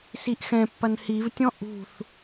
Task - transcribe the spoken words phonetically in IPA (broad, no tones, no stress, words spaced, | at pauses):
siʔxɛ̃pːɐn hivtʲɔ̃ ʔṳθ